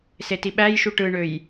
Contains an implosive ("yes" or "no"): yes